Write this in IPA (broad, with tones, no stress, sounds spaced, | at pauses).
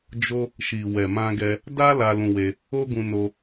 d͡ʒ o˦ | ʃ i˨ w ɛ˨ m ã˧ ɡ ɛ˧ | d a˦ l a˧ l ũ˧ w e˧ | o˦ ɡ ũ˧ n o˧